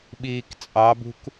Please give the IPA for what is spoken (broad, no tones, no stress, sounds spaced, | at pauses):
ɓ iː k t͡sʼ ɑ b ṳ k